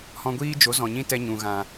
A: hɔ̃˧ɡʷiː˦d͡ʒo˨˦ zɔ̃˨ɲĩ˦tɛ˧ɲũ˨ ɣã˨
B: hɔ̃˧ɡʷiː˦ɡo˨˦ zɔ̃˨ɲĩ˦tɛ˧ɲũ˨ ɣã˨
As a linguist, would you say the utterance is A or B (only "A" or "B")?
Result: A